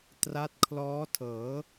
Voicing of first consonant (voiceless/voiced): voiceless